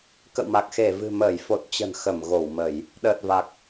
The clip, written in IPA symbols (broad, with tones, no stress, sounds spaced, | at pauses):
k ə̰˧˨ w m a˨˩ k̚ x e˧˩ v ɨ̤˨˩ m əː˧˩ j f o˨˩ t̚ t͡ɕ ə̤˨˩ n x ə˧˩ m ɣ o˧˩ w m ə˧˩˨ j | ɗ əː˨˩ t̚ v a˨˩ k̚